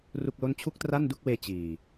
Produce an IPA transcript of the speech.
r u˥˩ k̚ l o˥˩ n t͡ɕʰ u˥˩ k̚ t r a˥˩ n d u˥˩ k̚ w eː˧ t͡ɕ iː˨˩

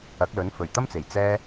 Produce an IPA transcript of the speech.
ɐ˨˥ k̚ l ɵ˨˥ n f ɵ˨˩ ɥ t̪ ɐ˥ m t͡s e˨˩ j t͡s ɛː˥

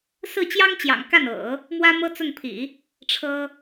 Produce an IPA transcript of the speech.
s ɹ̩˥˩ t͡ɕ j ɑ˥ ŋ t͡ɕ j ɑ̰˨˩ ŋ k a˥˩ n ɤ̰˨˩˦ | m w ä˥ m ɤ˥ t͡s ʊ˥˩ ŋ pʰ ḭ˨˩˦ | ʈ͡ʂʰ ɤ˥

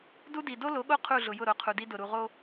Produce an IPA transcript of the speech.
d u˦ d i˨ d o˦ l o˨˦ ɠ o˦˨ qʰ u˦˨ ɮ ʊ˨ j ʊ˦˨ ɾ o˨ qʰ u˨ d i˦ d ʊ˨ ɾ u˨ ʁ o˦

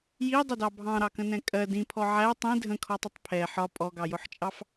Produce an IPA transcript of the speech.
j i dˤ ə d ɑ bʱ ɑ̃ ɾ ɑ k ə̃ n ɛ̃ kʼ ɜ d ĩ pʰ ɔ ʕ æ tˤ ĩ dʱ ə̃ kʰ ɔ tˤ ə tˤ pʰ ɛ ħ ɒ pʼ ɔ ɡ ɑ j ʊ ħ t͡ʃʼ ɑ f

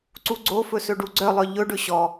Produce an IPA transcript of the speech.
ǀ u ɡ͡ǀ o f ɵ s ɵ ɖ u ɡ͡ǀ œ lˠ œ ʎ ɵ ɖ ɵ ɕ ɔ

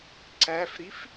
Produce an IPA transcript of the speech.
ǀ æ f ɾ i f

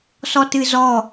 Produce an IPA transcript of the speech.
s ɔ t ɨ z ɔ

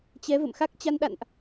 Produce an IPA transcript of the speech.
t͡ɕ ɛ˨˦ v ə̰˧˨ m x a˦˥ k̚ t͡ɕ a˧ n ɗ a̰˧˨ n ʔ

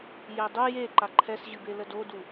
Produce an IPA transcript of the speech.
j ɛ dˤ u j e ǃ a ǃʰ ɛ s ʑ ɨ b e l ə d o d u

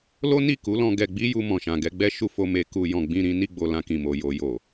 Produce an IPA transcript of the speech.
l o˦ n i˦˨ k u˨˦ l ɔ̃˧ ɡ ɛ˧ ɡ͡b i˦ j u˧ m ɔ̃˨ ʃ ã˨ ɡ ɛ˧ ɡ͡b ɛ˦ ʃ u˧ f o˧ m e˧ k u˧ j ɔ̃˨ ɡ͡b ĩ˧ ɾ ĩ˧ n i˧ ɡ͡b o˨ l ã˧ k ĩ˨ m o˨ j o˨ j o˨

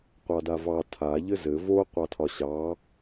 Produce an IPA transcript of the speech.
qʷ ɑ d a v ɑ tʰ a ʎ ɘ z ɘ v o qʷ ɑ tʰ ɒ ɕ ɑ

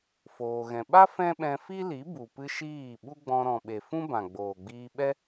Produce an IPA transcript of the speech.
f oː˧ ɣ ɛ̃˧ ɓ a˦ f ɛ̃˦ ɓ ɛ̃˧ f i˦ l i˨˦ b u˨ p ɨ˦ ʃ iː˦˨ ɓ u˦ ɡ͡b ɔ̃˧ ɾ ɔ̃˨ ɓ e˨ f ũ˦ b ã˨ ɡ͡b oː˨ ɡ͡b iː˧ ɓ ɛ˦

